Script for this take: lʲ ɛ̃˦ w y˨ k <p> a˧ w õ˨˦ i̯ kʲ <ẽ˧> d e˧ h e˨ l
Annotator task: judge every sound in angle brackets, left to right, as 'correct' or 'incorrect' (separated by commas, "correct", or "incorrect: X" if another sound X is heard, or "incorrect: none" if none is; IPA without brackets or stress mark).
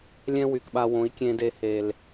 incorrect: ɓ, correct